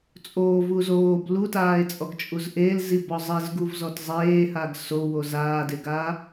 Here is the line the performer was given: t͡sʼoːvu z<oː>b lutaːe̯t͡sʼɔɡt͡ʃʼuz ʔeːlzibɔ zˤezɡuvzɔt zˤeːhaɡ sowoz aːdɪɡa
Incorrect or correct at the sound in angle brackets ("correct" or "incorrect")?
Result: correct